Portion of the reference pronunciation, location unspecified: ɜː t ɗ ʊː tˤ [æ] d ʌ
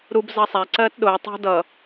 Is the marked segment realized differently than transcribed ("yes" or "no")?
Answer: yes